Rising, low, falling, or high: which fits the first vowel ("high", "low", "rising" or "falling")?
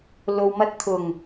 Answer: low